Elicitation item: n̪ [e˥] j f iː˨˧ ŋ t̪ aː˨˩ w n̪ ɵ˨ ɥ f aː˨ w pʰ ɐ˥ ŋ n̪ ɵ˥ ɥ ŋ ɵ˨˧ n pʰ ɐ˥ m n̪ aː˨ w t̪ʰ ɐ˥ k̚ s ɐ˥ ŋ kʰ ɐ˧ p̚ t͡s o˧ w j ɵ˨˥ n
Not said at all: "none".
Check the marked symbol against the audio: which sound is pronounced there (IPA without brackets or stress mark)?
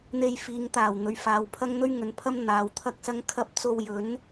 e˧